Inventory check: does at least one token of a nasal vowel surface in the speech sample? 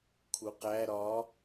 no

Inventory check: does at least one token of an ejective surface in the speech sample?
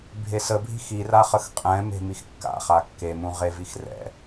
yes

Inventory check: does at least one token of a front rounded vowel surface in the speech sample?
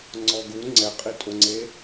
no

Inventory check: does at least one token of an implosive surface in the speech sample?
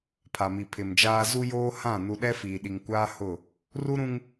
yes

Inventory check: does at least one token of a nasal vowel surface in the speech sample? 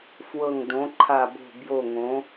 yes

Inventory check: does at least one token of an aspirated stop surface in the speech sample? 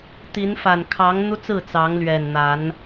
yes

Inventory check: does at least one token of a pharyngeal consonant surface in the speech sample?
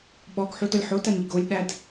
yes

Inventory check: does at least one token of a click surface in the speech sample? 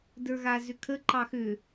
yes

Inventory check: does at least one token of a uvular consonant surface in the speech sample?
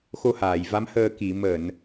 no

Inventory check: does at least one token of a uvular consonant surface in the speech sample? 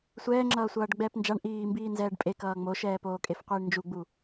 yes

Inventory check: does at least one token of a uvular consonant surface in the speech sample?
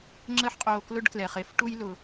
yes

